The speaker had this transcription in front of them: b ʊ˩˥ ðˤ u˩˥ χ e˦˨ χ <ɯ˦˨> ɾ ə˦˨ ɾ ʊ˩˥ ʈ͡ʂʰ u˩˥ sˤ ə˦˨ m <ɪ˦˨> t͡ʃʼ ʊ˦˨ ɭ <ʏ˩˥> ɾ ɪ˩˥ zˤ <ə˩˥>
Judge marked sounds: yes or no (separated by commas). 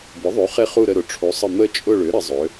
no, no, yes, no